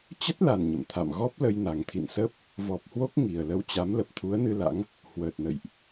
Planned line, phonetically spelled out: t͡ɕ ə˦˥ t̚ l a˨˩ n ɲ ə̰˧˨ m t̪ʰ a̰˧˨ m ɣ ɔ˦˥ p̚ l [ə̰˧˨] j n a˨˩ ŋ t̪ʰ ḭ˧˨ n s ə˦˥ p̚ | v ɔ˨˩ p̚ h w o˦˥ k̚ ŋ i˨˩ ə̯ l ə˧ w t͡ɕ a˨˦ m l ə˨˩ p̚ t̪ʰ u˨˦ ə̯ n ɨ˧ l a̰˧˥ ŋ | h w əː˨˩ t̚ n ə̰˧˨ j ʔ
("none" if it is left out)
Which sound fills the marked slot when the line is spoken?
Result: ə˧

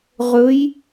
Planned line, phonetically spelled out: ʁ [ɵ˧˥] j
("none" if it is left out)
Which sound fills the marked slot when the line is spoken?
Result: ɵ˧˥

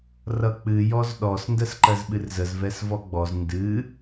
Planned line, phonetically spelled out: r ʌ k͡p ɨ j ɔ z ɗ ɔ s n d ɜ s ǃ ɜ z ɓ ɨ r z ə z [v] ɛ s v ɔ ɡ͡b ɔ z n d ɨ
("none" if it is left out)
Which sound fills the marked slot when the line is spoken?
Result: v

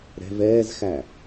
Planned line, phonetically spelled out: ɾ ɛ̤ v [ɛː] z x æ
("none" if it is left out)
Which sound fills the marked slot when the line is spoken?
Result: ɛː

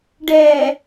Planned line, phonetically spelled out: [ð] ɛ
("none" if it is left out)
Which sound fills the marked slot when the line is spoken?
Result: ɖ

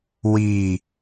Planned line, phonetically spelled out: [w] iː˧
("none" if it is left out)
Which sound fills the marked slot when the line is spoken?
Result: w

